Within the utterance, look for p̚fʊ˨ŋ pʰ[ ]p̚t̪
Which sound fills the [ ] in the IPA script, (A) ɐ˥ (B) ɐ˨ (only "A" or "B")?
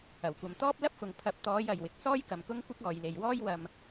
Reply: B